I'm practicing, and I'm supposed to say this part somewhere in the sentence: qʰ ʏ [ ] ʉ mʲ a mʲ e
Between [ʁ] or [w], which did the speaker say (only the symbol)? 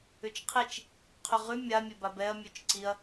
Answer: ʁ